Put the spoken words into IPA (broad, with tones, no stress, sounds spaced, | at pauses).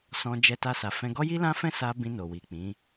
s ɔ̃˧ d͡ʒ ɛ˧ t a˧ s a˨ f ɛ̃˧ ɡ ɔ˦ j i˦ l ã˦ f ɛ̃˦ s a˧ b ĩ˧ n o˨ w i˨ k͡p ĩ˨˦